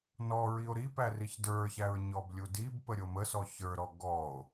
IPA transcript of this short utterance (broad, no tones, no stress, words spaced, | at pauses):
nɔ ɹio̯ɾipæ riçdə˞çæɹ ɲɔblʲudibpə ɾʲoməsɔ çə˞ɾɔ ɡɔo̯